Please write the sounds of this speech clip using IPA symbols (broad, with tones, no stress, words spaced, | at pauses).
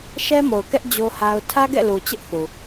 ʃɛ˦mo˨ʊ̯ kɛ˦ʔ d͡ʑo˦ha˦ʊ̯ tʰä˦ɡɛ̰˦˨lu˨ t͡ɕɪ˦ʔθu˨